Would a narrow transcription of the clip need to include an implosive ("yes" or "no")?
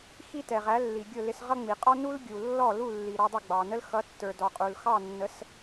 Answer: no